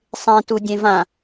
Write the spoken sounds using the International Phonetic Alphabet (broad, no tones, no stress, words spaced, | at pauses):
sˤẽtu dʲẽvã